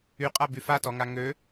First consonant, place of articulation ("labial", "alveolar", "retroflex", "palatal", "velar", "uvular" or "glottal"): uvular